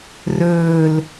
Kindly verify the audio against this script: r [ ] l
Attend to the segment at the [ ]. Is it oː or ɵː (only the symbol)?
ɵː